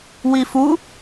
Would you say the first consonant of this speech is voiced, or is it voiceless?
voiced